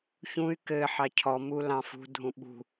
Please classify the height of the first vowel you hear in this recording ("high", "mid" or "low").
high